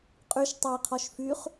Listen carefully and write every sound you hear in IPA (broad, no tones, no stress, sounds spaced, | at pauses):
qʼ y ʃ tˤ e qʰ ɔ ʃ f y χ